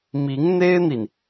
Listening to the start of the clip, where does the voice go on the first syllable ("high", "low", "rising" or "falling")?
rising